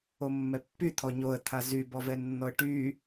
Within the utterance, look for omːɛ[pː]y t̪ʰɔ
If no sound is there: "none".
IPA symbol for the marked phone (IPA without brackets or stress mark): pː